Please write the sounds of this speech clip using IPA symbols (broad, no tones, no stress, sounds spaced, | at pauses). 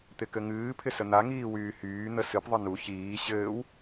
t̪ ɪ k ɘ ŋ ɨː pʰ ɪ s ə n̪ a ŋ iː w yː h yː n̪ ə s ɨ p ðˤ ə n u ç iː ɕ ɘː w